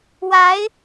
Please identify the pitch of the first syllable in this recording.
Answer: rising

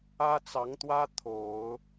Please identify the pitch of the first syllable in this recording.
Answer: high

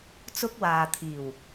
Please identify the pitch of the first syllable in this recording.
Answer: high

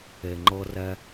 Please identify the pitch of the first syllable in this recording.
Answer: low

